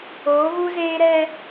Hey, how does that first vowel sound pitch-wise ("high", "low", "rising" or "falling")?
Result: rising